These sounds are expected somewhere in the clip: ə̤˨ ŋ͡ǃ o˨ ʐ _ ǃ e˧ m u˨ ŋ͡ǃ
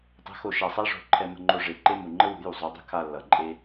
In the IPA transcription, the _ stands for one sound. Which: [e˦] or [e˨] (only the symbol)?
e˨